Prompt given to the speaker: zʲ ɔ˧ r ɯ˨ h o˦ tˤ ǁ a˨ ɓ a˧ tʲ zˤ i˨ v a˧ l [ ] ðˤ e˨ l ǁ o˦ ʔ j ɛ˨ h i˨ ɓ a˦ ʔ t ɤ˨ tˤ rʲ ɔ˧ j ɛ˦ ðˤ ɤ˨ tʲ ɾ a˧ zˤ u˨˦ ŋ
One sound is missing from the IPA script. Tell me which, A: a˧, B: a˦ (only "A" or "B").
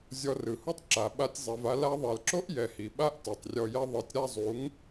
A